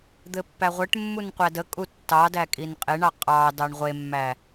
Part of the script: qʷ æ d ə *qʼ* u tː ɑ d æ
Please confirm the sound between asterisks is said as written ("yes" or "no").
no